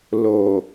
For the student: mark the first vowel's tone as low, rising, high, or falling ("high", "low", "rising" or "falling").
low